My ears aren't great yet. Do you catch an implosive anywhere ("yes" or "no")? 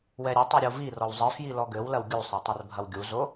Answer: no